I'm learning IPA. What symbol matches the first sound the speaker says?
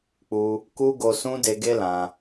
k͡p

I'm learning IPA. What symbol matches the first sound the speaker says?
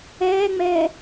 ɛː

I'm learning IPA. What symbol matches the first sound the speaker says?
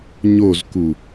ɲ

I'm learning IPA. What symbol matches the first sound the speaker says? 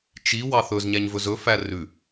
t͡ʃ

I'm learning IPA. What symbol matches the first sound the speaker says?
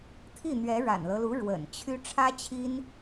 t̪ʰ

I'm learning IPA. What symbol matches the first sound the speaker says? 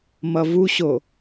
m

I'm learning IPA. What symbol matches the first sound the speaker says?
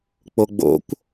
k͡p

